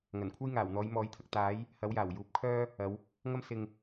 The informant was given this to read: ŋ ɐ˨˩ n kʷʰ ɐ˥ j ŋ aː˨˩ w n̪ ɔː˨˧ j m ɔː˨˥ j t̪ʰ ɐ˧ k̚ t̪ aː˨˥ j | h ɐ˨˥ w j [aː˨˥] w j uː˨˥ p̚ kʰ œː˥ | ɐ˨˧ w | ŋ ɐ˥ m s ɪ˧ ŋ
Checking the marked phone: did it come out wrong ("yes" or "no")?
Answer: yes